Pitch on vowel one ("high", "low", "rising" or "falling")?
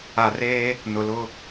low